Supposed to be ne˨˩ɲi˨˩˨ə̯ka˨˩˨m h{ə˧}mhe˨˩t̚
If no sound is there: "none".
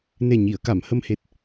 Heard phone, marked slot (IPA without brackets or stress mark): ə˧